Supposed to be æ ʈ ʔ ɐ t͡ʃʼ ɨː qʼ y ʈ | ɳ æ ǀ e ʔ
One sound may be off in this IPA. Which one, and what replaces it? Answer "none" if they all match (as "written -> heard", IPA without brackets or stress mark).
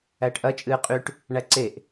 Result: none